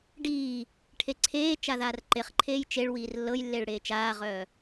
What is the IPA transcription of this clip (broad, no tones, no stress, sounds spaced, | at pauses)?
ɖ iː | ʈʰ e ǀʰ eː t͡ʃ a ð aː r ǃ e χ ǃʰ eː j t͡ʃ e ɭ w iː r lː ɤ j lː e ɭ ɽ eː t͡ʃ aː ʁ œː